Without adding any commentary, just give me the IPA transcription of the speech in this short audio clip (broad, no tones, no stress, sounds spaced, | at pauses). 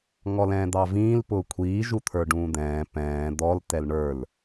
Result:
ŋ ɔ l ɛ̃ː d̪ ɑ v ĩː l p ʊː kʷʰ iː ʒ u t̪ʰ ə˞ ɖ ũː d̪ ɛ̃ː p ɛ̃ː d̪ ɔ l t ɛ l ɳ ə˞ l